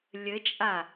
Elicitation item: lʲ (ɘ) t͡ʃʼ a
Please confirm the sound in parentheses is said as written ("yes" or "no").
yes